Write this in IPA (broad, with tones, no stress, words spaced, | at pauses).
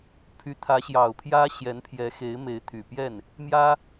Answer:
pʰy˧˥ t̪ʰä˧˥ɕjɑ˨˩ʊ̯pʰjä˥ɕjɛ˧˥n pʰjɛ˧˥xe˧˥ɪ̯ me˧˥ɪ̯t̪ʰy˨˩pjɛ˥˩n | mjä˥